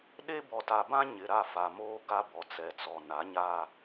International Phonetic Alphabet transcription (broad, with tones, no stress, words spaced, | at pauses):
ɗe˦ bɔ˨ta˨bã˦ ɲɪ˨ɾa˦˨fa˨moː˦ ɡa˦bɔ˨ t͡sɛ˨t͡sɔ˨ na˨˦ɲa˦